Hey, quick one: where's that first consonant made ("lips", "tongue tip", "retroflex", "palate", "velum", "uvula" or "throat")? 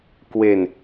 velum